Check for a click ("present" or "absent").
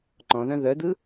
present